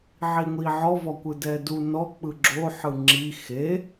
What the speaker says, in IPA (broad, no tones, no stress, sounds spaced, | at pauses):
ʕ i ŋʷ i ʕ ɔ v ɔ kʷ ɯ d ɛ d u n ɔ k͡p ɯ ɡ͡ǁ o ħ ɯ ŋ͡ǁ i x e